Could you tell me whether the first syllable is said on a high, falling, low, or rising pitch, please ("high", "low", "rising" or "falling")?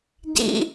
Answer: high